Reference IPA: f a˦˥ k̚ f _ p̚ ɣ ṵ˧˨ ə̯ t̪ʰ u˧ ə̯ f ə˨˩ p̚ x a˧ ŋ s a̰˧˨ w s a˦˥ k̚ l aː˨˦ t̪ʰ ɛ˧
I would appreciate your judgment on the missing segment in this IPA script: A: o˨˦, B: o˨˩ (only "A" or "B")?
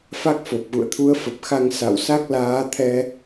B